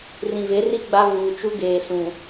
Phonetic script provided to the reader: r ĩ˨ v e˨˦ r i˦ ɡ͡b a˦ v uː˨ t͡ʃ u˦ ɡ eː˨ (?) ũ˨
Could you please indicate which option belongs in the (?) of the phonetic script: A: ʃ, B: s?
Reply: B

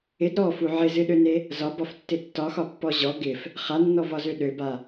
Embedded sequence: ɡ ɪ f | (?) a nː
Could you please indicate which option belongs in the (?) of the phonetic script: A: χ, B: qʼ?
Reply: A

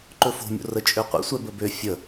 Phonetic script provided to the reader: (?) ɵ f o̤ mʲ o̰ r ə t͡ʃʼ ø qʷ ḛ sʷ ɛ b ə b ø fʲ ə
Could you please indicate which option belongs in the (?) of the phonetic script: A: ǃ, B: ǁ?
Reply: A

